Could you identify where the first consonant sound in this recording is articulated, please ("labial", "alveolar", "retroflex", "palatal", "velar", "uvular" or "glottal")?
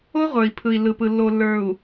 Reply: uvular